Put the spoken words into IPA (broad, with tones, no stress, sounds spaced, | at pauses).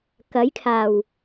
k ɐ˨˥ j kʰ aː˨˩ w